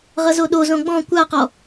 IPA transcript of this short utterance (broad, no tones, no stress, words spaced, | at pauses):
ʁʌzoɗozõ ɡ͡bɔ̃ kʷaqɔ